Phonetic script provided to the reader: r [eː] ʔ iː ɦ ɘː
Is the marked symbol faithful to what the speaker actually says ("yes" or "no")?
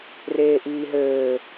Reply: yes